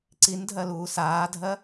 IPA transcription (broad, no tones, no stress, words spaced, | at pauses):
ǀindʱɜluː saːdʱɜ